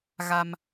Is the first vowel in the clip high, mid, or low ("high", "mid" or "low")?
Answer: low